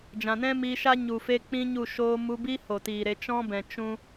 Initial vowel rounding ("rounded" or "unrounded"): unrounded